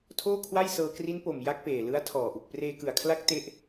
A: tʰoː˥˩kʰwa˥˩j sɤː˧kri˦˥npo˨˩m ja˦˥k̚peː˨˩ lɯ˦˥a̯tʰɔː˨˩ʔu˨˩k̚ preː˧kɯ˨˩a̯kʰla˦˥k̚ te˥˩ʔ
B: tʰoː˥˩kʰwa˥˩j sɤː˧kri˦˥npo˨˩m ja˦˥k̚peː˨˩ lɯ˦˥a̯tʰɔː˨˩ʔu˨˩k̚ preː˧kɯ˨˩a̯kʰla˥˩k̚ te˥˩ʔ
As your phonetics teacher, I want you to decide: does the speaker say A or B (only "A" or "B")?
A